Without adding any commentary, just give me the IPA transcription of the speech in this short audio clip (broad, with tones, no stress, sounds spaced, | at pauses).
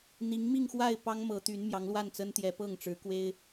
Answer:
n̪ i˧˥ ŋ m i˥˧ ŋ x w a˥˩ ɪ̯ p ɑ˥ ŋ m ɤ˧˥ t̪ y˧˥ n m j ɑ˧˥ ŋ l w a˥˩ n t͡s ə˥ n t̪ j ɛ˧˥ p ɤ˥˩ ŋ ʈ͡ʂ ɻ̩˧˥ k w e˥ ɪ̯